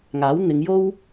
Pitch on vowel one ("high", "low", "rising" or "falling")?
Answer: rising